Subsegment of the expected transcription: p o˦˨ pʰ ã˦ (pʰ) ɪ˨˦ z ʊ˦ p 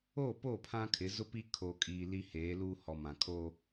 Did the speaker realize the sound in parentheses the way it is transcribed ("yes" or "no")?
no